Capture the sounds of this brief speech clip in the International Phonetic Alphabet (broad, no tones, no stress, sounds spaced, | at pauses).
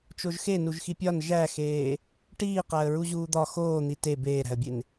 t͡ʃ o ʒ x e n u ʒ x i pʲ ɒ n ʒ æ x eː | ʈ iː q æ ə̯ ɹ u ʑ uː d̪ ɒ x oː n̪ i t e b eː ɾ æ̤ ə̯ bʲ e n